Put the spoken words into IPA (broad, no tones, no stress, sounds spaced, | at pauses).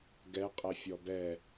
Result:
ɡ ɛ qʼ ɛ fʲ ɔ b ɛ